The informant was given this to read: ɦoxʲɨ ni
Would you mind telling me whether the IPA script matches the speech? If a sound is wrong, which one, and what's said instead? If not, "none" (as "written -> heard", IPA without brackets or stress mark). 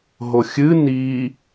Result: none